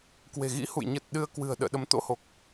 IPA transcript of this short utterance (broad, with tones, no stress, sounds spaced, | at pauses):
k w e̤˨˩ ɣ ḭ˧˥ h ṵ˧˨ j ɲ ə˨˩ t̚ ɗ ɨ˧ ə̯ k w ɨ̤˨˩ ə̯ ɗ ə̰ː˧˨ ɗ ə˨˦ m t̪ o̰˧˥ h o˨˩ k̚